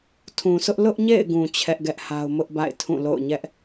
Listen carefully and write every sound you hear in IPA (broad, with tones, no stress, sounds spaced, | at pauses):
tʰ ũ˨ s ʊ˦ ʔ l ʊ˦ ʔ ɲ ḛ˦˨ ɪ̯ ɡ ũ˨ t͡ɕʰ ɛ˦ ʔ ɡ ɛ˦ ʔ h a˦ ʊ̯ m ʊ˦ ʔ b a̰˦˨ ɪ̯ tʰ ũ˦˨ l o̰˦˨ ʊ̯ ɲ ɛ˦ ʔ